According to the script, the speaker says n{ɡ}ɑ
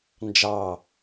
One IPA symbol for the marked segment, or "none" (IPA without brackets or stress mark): d͡ʒ